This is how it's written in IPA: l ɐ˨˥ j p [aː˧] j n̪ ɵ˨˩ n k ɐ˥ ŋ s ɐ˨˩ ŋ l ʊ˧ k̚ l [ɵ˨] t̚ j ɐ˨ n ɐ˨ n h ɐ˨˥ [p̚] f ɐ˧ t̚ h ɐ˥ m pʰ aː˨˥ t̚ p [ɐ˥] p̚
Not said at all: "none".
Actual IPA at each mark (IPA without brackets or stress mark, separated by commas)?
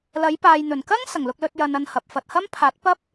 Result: aː˨, ɵ˧, p̚, ɐ˥